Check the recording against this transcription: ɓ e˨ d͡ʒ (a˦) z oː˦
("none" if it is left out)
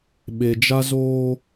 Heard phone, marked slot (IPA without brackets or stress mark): a˦